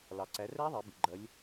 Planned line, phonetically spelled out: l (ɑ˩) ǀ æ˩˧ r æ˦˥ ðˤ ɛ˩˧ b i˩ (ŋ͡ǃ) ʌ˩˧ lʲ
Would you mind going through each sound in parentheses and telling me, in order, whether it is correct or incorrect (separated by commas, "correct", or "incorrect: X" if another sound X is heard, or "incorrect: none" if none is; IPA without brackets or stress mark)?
correct, incorrect: ɡ͡ǃ